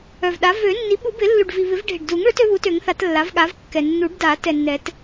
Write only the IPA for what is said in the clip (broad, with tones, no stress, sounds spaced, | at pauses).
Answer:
œ˨˩ v ɗ a˩˥ v ø˨˩˦ nː i˩˥ ɓ u˨˩˦ b ɪ˨˩˦ lː u˨˩ ɖ v i˨˩ β ɪ˨˩˦ v ɖʱ ɪ˨˩ ɖ d u˨˩˦ ŋ ɭ ø˩˥ t ø˩˥ β u˩˥ t ø˨˩˦ ŋ θ a˨˩˦ t lː a˩˥ v ɠ a˩˥ v kː ɛ˨˩ nː u˨˩˦ ɖ d a˨˩˦ t ɛ˨˩ nː ɛ˨˩˦ t